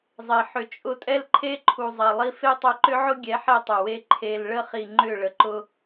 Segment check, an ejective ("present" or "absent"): present